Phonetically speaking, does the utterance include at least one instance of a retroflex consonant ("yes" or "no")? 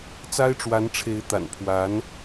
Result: yes